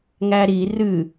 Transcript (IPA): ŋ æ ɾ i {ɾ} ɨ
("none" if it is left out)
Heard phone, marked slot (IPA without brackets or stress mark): r